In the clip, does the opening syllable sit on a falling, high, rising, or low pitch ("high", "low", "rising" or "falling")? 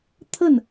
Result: falling